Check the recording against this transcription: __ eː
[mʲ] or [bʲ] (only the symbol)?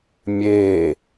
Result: mʲ